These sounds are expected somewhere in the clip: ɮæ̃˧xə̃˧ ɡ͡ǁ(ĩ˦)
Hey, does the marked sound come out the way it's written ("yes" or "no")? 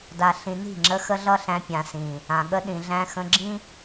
yes